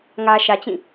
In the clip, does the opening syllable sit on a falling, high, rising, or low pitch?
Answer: low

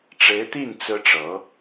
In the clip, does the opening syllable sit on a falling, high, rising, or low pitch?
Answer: rising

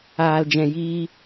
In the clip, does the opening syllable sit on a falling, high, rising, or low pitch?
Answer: low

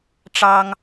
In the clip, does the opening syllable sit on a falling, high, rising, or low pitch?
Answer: high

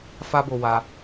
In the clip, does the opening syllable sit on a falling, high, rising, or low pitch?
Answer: high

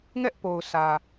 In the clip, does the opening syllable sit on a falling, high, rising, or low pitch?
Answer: high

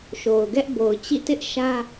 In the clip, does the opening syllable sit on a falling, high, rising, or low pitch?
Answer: low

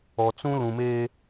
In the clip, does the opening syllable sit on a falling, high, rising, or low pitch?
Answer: low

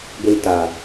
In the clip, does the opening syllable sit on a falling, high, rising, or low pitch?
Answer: low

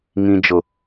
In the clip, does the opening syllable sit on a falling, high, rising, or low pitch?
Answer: low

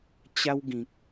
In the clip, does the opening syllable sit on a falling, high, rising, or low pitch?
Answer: high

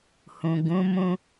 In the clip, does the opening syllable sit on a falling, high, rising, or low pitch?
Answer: low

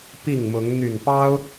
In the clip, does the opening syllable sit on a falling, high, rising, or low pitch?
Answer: falling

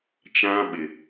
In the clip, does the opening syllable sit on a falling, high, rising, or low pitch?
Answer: high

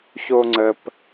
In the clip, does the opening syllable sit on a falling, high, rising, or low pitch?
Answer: high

